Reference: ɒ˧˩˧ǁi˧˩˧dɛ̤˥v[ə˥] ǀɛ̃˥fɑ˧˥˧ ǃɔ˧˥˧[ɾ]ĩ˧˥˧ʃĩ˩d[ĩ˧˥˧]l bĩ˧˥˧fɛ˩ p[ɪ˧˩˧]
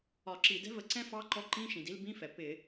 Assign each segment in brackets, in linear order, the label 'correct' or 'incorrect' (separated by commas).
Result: incorrect, incorrect, incorrect, correct